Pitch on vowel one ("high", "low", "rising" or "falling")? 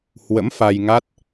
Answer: rising